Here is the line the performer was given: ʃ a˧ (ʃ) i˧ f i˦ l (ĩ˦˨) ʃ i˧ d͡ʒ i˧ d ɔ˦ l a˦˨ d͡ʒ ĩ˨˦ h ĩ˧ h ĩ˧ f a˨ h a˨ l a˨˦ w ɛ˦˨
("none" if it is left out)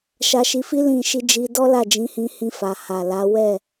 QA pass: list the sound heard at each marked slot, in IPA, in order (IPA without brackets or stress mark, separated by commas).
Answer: ʃ, ĩ˦˨